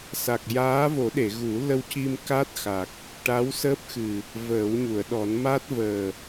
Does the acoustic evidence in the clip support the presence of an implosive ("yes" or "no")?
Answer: yes